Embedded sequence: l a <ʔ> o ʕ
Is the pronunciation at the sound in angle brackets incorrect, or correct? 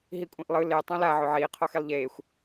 incorrect